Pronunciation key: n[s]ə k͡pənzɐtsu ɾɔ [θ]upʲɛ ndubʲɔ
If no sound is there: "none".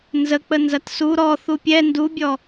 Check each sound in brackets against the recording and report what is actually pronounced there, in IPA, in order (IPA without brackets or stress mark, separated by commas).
z, θ